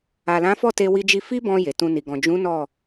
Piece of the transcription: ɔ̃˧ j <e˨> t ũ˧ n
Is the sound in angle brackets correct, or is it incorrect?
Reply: correct